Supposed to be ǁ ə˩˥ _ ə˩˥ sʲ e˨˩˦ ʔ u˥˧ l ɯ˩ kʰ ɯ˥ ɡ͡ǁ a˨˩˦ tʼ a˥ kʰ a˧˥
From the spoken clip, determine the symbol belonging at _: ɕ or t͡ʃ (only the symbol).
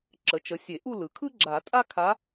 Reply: t͡ʃ